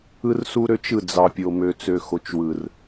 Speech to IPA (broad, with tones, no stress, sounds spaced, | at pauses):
ɯ˦ r s u˦ ɾ ø˦ t͡ʃ ɯ˦˨ d͡z ɑ˨ pʲ o˨ m ø˨ t͡s ø˨ x o˨ t͡ʃ w ɯ˨ r